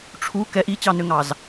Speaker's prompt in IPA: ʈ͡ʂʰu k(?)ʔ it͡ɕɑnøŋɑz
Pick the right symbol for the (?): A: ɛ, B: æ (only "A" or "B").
A